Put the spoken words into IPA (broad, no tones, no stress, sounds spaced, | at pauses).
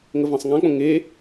ŋ ə v ã sˤ ŋ ã k͡p õ ŋ e